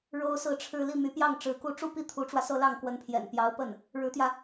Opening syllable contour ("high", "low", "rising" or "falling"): high